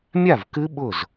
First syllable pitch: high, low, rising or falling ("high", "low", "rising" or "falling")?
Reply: falling